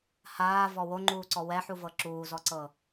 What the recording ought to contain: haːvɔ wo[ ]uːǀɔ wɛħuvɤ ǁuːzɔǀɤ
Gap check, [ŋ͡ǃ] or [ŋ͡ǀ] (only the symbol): ŋ͡ǃ